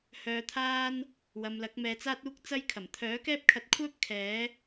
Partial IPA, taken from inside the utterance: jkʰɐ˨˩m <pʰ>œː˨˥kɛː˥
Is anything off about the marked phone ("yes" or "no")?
yes